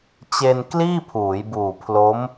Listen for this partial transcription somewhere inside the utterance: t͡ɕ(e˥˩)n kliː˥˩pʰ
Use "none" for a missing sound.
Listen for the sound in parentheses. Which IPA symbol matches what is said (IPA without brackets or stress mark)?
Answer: e˧